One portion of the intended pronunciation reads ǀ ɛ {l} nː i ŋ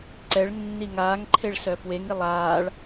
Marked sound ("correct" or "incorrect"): incorrect